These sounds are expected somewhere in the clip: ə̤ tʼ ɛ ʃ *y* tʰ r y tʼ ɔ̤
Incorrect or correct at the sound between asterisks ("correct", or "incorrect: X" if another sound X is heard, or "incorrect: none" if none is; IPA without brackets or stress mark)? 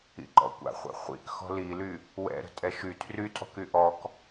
correct